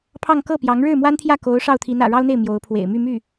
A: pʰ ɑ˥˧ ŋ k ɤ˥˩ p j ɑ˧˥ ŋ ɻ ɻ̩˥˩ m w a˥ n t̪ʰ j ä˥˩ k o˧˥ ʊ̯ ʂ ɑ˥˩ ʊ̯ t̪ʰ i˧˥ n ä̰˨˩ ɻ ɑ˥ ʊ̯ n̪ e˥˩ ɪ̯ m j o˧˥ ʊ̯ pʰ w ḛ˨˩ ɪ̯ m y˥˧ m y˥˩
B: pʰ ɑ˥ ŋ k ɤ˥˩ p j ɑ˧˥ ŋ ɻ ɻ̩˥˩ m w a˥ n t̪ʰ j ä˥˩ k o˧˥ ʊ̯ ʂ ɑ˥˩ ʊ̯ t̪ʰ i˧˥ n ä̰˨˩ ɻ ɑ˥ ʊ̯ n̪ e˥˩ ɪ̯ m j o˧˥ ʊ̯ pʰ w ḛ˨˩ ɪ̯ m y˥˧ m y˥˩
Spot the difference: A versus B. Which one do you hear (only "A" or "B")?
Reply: A